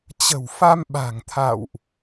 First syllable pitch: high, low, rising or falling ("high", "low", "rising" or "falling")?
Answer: low